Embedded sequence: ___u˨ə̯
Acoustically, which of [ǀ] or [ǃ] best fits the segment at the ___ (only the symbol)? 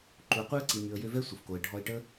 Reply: ǃ